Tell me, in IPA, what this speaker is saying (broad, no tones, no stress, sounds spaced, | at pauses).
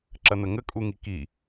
ǁ ɐ n̪ ə ŋ ə kʼ u ŋ i k i